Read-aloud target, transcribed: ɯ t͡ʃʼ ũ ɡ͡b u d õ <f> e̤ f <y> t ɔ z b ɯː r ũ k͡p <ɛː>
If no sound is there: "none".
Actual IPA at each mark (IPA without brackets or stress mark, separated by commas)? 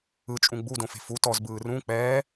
f, u, ɛː